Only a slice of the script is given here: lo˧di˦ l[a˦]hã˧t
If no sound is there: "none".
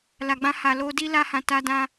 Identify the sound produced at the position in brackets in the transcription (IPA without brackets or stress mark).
a˦